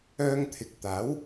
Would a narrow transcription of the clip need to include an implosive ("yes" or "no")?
no